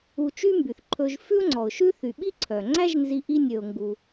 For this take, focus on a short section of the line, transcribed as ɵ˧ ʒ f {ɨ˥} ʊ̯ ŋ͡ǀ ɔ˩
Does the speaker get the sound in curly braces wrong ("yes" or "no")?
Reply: yes